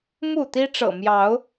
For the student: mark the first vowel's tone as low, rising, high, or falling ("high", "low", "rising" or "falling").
falling